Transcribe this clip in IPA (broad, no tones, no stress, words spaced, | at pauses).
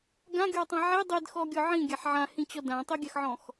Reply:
ɡãɡʲɔːtˤã ʕi dˤidxɔɡʲɔ ʕĩɡʲaħ ʕãhĩt͡ɕɔ dãtˤiɡʲaxʕɔ̃x